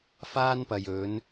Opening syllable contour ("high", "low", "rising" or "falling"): high